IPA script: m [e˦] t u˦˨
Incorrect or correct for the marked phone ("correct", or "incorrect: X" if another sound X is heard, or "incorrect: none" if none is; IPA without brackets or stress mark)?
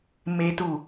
correct